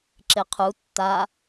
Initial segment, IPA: ǁ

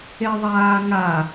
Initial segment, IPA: e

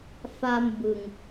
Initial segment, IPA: f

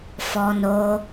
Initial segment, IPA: f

